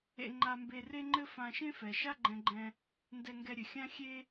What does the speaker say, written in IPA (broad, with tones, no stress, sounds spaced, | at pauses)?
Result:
ḛ˧ ŋ͡ǃ a˧ m b e˧ r e˥ ŋ͡ǃ ɘ˥ f ã˧ ʃ ẽ˥ f ɛ˩ ʃ a˥ ɡ͡ǃ ɛ̃˧ ɡ͡ǃ ɛ̃˧ | n d ɛ˧ ŋ ɡ ɛ˧ ɾʲ ɘ˩ xʲ ã˥ xʲ e˥